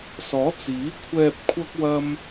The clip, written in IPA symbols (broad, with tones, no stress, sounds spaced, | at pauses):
s ɔː˨˥ t͡s iː˨˥ kʷʰ ɛː˧ p̚ kʷʰ ɐ˥ k̚ w ɐ˥ m